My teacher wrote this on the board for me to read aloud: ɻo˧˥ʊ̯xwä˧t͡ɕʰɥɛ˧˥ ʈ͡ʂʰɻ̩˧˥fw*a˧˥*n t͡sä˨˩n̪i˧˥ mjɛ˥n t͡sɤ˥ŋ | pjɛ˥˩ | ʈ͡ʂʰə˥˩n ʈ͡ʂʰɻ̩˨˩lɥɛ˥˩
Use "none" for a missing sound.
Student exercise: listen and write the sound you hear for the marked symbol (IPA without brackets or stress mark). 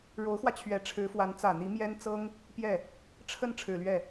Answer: a˧˥